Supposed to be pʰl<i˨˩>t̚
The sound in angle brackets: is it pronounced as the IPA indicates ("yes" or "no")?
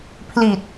yes